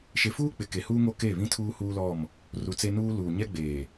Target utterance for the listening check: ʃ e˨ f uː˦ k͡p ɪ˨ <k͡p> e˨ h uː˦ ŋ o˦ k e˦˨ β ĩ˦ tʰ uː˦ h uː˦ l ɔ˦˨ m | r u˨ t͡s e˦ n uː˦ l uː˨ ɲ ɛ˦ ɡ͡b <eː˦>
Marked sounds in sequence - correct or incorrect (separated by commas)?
incorrect, incorrect